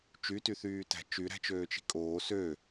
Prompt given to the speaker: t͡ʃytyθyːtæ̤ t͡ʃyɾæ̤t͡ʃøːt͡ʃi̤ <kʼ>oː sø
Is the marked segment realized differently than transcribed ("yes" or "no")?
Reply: no